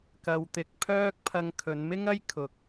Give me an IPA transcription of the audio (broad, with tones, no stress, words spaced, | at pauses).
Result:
kɐ˧wt̪ɪ˧k̚pʰœː˥k̚ pʰɐ˧ŋkʰɵ˨˧nmɪ˥ŋɐ˥j kʰʊ˧k̚